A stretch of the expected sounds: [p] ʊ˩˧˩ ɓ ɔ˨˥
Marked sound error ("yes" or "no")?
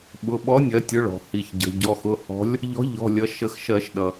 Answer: yes